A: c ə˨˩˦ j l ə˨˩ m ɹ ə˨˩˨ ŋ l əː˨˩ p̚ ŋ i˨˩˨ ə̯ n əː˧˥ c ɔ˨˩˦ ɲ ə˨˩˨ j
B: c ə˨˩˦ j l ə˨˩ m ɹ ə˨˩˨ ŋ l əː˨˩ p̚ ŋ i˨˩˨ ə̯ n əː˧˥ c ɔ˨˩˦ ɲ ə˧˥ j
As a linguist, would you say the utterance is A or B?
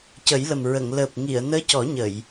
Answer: A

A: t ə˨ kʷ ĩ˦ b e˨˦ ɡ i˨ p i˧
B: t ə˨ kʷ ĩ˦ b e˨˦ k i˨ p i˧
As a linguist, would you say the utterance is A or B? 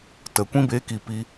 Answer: B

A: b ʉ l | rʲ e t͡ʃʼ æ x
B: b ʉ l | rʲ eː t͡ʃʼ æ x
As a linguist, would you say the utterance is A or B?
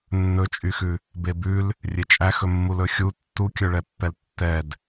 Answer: A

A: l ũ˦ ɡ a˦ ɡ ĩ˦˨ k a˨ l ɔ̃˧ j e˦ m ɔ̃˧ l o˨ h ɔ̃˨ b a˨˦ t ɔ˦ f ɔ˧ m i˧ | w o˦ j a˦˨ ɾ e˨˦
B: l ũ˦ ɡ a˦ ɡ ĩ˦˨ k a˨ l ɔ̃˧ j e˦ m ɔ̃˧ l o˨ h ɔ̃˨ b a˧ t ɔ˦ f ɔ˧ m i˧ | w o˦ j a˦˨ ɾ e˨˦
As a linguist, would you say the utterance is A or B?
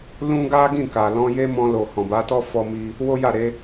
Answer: A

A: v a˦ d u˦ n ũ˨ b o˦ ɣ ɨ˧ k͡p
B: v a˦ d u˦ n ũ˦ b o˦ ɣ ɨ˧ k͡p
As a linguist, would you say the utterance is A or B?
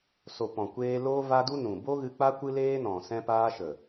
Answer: A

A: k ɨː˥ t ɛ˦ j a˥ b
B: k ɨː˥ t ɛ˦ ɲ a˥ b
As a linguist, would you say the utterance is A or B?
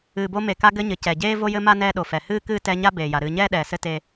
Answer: B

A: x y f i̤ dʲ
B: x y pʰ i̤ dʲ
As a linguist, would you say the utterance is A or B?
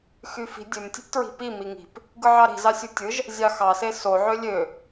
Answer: A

